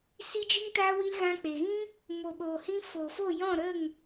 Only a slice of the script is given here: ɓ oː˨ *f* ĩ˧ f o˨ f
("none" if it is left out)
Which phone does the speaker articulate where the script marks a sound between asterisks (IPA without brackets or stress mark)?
h